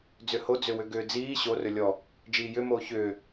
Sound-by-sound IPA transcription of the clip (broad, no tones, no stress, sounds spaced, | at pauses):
d͡z ʏ h o d͡z ʏ w ʏ ɡ ʏː d͡z iː ɕ o r ɵ lʲ ɔ | d͡ʒ iː j ʏ m oː ç ʏː